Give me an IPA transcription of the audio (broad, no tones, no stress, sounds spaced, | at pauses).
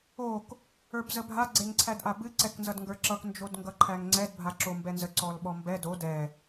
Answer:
o k | ə˞ b z ə bʱ a ɡ͡ǀ e ŋ ǀʰ æ d ʔ a b ɨ ǀ ɛ k n z ʌ d ŋ ɡ ə˞ ǁ ʌ k n d͡ʒ o d ŋ ɡ ʌ ǃʰ æ ŋ ŋ͡ǀ ɛ d bʱ a ǁ o m b ɛ n z ə ǀ ɔ l ɓ ɔ m b ɛ d o d ɛ